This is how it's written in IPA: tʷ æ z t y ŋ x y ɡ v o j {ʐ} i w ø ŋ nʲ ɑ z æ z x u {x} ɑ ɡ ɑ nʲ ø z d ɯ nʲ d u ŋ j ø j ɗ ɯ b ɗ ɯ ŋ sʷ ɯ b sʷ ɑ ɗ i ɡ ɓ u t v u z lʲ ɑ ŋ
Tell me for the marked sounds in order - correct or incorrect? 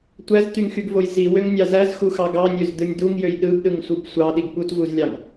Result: incorrect: z, correct

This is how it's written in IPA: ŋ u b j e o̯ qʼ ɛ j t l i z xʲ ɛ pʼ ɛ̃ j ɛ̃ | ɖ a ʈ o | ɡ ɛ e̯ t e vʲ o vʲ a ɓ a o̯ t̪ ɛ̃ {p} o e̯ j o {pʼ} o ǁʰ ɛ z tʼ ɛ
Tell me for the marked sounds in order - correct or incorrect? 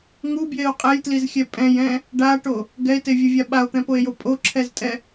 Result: correct, correct

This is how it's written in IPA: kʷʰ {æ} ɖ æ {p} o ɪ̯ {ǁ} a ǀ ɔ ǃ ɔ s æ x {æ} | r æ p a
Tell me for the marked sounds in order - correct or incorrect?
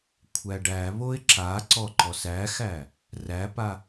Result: correct, incorrect: β, correct, correct

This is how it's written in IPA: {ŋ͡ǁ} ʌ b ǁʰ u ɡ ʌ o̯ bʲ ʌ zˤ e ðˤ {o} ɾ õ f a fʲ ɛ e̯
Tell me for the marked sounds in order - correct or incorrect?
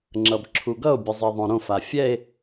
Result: correct, incorrect: õ

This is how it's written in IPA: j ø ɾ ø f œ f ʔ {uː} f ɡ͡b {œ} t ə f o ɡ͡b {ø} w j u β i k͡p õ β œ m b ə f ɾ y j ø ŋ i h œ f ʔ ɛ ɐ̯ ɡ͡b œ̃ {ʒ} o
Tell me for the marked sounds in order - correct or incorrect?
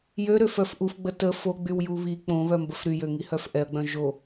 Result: incorrect: u, incorrect: ə, incorrect: y, correct

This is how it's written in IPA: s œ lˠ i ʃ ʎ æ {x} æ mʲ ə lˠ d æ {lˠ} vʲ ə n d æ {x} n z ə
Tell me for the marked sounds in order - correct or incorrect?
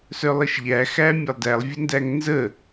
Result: correct, correct, incorrect: ŋ

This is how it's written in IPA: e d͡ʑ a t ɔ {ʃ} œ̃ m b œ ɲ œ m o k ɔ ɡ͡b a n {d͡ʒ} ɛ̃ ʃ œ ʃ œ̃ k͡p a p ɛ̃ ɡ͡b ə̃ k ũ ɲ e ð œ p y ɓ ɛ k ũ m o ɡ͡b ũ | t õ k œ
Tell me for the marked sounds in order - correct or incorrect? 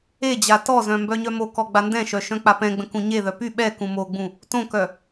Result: incorrect: z, incorrect: d

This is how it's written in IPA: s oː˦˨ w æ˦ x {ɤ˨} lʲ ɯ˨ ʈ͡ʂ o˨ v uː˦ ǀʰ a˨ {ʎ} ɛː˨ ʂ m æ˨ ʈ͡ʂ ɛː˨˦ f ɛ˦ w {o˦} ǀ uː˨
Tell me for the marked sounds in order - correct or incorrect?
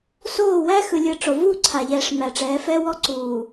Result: incorrect: ɯ˨, correct, incorrect: ɔ˦

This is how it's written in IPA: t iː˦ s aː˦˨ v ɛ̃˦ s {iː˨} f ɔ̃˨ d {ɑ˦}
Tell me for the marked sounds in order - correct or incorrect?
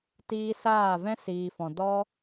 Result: correct, incorrect: ɔ˦

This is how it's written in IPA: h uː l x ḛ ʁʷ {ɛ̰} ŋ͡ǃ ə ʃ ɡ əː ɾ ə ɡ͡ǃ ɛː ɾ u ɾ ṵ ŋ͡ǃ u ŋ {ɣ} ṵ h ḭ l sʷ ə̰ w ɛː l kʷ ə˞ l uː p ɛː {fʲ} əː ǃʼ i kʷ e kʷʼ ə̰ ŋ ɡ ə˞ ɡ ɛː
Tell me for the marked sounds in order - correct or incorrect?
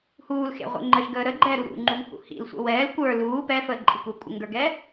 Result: correct, incorrect: h, incorrect: f

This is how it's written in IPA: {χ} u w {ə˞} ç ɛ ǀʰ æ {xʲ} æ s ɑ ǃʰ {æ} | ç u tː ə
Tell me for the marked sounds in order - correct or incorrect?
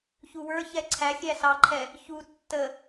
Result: incorrect: ç, correct, correct, incorrect: ɛ

